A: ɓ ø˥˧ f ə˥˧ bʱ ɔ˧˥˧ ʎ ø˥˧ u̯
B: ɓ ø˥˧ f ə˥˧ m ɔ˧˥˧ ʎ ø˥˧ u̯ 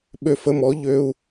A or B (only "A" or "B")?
B